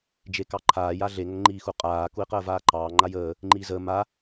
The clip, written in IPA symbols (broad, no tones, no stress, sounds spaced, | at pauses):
d͡ʒ e k ɑ ǃʰ aː j a ɮ e ŋ ə ŋ ŋ͡ǃ iː x u qʼ aː k u i̯ q əː v aː ǃ ɑː ŋ͡ǃ a j əː | ŋ͡ǃ iː z əː m a